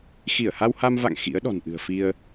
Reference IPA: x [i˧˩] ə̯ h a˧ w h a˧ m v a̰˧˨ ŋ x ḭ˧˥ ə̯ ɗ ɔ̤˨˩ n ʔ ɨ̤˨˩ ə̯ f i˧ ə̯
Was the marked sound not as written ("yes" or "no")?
no